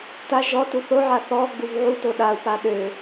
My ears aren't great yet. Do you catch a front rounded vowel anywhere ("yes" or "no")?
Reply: yes